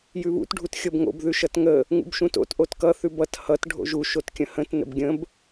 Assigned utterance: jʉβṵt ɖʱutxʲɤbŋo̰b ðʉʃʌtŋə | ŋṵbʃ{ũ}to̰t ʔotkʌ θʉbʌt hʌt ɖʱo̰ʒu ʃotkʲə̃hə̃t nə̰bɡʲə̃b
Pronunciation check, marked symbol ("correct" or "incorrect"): correct